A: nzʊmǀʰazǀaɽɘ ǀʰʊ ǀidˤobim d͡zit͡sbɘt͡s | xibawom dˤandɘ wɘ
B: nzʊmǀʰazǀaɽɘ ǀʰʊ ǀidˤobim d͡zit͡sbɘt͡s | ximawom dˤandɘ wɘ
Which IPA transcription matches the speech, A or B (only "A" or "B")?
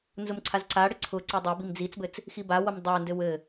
A